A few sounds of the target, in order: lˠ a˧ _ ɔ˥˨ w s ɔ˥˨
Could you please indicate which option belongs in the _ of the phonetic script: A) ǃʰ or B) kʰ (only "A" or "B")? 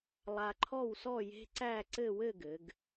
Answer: A